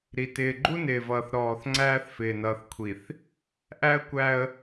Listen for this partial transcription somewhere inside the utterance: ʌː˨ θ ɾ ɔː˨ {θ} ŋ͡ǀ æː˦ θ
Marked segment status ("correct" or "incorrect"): correct